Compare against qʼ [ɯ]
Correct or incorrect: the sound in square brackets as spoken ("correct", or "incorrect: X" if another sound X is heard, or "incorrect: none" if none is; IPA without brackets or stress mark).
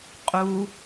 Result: incorrect: u